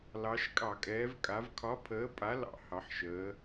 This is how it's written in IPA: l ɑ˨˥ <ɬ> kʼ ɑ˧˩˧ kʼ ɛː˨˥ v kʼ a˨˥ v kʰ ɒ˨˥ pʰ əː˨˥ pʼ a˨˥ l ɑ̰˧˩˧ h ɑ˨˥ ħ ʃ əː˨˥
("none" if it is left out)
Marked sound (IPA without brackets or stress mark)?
ʃ